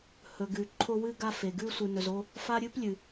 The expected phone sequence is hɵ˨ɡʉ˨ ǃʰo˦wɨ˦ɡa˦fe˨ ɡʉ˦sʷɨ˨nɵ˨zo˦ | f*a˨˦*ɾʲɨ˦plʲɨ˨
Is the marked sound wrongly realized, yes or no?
yes